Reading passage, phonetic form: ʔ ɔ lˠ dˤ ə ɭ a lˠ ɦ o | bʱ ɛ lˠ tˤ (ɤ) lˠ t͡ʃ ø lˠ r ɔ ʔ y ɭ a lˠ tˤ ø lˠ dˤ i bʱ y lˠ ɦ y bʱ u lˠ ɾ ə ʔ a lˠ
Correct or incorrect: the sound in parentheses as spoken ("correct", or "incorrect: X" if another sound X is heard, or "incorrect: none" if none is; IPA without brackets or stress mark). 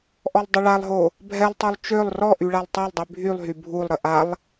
incorrect: o